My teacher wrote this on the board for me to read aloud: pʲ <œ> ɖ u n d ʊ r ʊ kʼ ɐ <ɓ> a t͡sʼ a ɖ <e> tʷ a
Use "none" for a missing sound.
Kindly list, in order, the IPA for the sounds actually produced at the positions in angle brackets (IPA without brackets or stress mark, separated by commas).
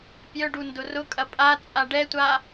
œ, pʼ, ɛ